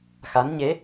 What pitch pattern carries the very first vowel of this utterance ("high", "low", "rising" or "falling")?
rising